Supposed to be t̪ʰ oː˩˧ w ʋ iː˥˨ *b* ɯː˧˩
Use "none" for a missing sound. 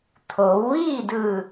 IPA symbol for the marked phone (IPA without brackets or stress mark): d